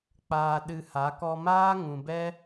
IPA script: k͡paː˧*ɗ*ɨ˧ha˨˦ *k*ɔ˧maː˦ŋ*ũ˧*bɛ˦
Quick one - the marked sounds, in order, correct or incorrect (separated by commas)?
correct, correct, incorrect